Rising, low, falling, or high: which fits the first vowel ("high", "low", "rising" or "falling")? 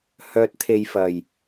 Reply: low